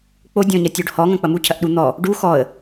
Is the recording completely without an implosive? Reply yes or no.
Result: no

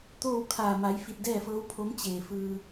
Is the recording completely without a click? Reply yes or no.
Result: yes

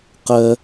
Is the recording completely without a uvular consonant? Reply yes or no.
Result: no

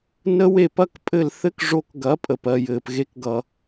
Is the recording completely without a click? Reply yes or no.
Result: yes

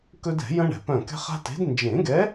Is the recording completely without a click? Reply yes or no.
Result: yes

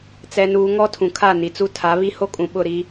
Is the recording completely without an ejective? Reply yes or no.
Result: no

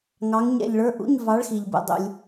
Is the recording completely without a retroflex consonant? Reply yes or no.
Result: no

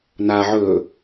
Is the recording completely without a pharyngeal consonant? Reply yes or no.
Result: no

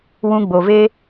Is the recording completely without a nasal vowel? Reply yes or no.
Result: no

